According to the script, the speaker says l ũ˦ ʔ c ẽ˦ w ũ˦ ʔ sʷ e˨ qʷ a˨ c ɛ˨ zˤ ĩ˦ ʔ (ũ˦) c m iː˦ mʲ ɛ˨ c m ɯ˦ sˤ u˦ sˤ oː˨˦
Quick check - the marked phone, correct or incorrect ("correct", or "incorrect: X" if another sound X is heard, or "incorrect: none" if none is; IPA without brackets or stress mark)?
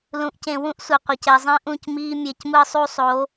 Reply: incorrect: ũ˦˨